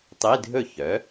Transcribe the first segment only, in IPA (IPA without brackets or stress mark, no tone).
tˤ